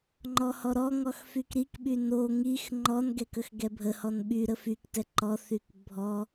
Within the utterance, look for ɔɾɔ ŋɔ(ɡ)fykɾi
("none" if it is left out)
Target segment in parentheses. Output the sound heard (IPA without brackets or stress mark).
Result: x